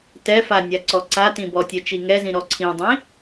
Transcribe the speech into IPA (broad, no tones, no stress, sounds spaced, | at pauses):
t ɛ f a nʲ a ǀ ɔ ǀ a t ĩ b ɔ tʲ ɛ t͡ʃ i ŋ ɛ z ĩ ɾ ɔ ǀʰ ĩ dˤ ĩ